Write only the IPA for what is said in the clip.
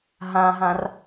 ɦ ã ɦ ã r

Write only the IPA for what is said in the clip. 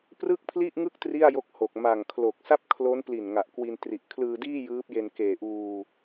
p r ɯ˥˩ k̚ pʰ l i˥˩ ʔ ŋ ɯ˥˩ k̚ t r i˥˩ a̯ j o˦˥ k̚ h o˨˩ k̚ m a˨˩ ŋ kʰ l o˨˩ k̚ s a˥˩ p̚ kʰ l o˦˥ n p l i˨˩ n ŋ a˨˩ ʔ k w i˧ n t r i˨˩ ʔ kʰ l ɯː˧ d iː˥˩ j ɯː˦˥ p̚ j e˧ n k eː˨˩ ʔ uː˧

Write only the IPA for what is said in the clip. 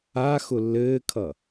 a x ʊ lː ɘː kʰ ʌ

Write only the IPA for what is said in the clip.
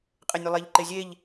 qʼ e nʲ y lˠ e ʎ ǃ e zʲ e ʎ

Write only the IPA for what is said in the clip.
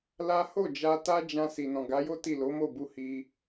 l a˦ h o˦˨ d͡ʒ a˧ t a˦ d͡ʒ ã˧ s i˨ n ɔ̃˨ ɡ a˨˦ j o˦ t i˦˨ l o˨˦ m o˦˨ b u˧ h i˧

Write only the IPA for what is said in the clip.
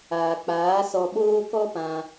aː˨ k͡p aː˨˦ s ɔ˧ ɓ oː˦ k ɔ˦ p ã˧

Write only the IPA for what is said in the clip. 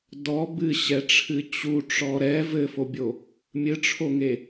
d ɔ b ɨ ɕ ɛ ʈ͡ʂʰ ɨ t͡ɕ u ʈ͡ʂ ɔ ɾ ɛ v ɘ f o bʲ o | mʲ ɨ ʈ͡ʂʰ o ŋ e

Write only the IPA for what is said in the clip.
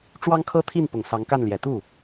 ʈ͡ʂ w ɑ˥ ŋ kʰ ɤ˥ t̪ʰ i˥˩ n p ʊ˨˩ ŋ s ɑ˧˥ ŋ k a˥˩ n l j ɛ˨˩ t̪ u˥˩

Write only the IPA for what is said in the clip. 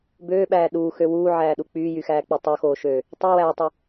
b øː ɓ æː ɗ uː x ø w uː ʕ æː ɗ u k͡p yː j y x æː k͡p y tˤ o x oː ʃ øː | tˤ y w æː tˤ u

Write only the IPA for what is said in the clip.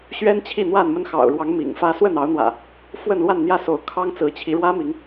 ɕ ɥ ɛ˦ n t͡ɕʰ i˥˨ n̪ w a˥˨ n m ə˦ n x ɑ̰˨˩ ʊ̯ ɻ w ɑ˨˦ ŋ m ḭ˨˩ ŋ f ä˦ s w ə˥˨ n ɑ˨˦ ʊ̯ n̪ w ä̰˨˩ | f w ə˥˨ n l w a˥˨ n n̪ j ä˥˨ s o˨˦ ʊ̯ kʰ ɑ˦ ŋ t͡s ɹ̩˨˦ t͡ɕʰ i˨˦ ɻ w ä˦ m i˨˦ ŋ

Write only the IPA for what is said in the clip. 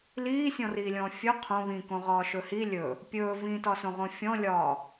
l iː sʲ ɔ̃ r iː lʲ ɔ̃ː fʲ ɵ qʰ õ β ĩ k õ ʁ ɒː ʃ ɵ h i lʲ ɵ | pʲ ɵː v ĩ t ɒ s õ ʁ õ fʲ ɔ̃ lʲ ɒː

